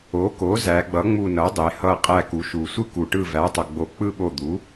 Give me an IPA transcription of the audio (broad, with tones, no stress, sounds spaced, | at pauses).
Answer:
o˩˥ k o˩˥ z æ˩˧ ɡ͡b ʌ˩˥ ŋ͡m u˧˩ n ʌ˩˥ dˤ e˩˧ h ʌ˧˩ qʼ æ˧˩ k u˩˧ ʃ u˩ sʷ ɯ˥ k u˩ ʈ ɯ˧˩ v æ˩˥ tˤ ʌ˩ ɡ͡b o˧˩ k͡p ɯ˥˧ ɓ o˧˩ d̪ u˩˥